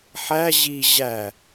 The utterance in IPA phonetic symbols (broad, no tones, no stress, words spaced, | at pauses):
ħæ ʑi ʑæ